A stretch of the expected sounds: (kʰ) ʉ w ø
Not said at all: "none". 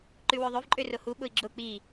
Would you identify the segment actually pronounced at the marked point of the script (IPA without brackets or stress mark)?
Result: ǃ